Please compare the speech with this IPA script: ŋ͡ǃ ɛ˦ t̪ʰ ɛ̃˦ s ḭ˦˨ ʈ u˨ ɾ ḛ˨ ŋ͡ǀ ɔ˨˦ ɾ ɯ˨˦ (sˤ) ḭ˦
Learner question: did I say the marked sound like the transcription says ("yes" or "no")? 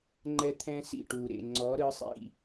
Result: yes